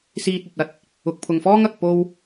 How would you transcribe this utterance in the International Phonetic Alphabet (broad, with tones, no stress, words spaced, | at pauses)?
siː˧t̚ɵ˨t̚ ɐ˨˥t̚ | ʊ˨k̚pʰʊ˨ŋfɔː˥ŋ ɐ˨k̚ po˧w